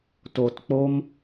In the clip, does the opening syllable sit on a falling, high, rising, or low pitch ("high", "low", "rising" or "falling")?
low